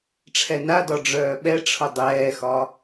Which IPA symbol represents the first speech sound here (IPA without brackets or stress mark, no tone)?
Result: ʈ͡ʂʰ